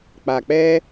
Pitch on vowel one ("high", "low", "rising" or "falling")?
low